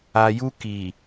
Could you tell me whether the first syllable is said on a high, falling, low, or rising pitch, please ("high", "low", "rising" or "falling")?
low